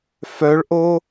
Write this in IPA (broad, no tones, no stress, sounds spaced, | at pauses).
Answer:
f œ ɭ ʔ o